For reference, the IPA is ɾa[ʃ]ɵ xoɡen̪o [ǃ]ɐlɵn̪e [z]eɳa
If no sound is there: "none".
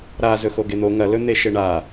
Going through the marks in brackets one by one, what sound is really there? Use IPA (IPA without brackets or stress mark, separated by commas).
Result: z, ŋ, ʃ